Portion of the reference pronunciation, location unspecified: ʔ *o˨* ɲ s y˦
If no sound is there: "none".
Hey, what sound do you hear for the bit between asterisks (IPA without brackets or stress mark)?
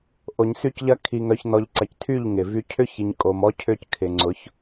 o˨